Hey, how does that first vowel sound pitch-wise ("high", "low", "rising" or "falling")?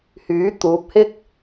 rising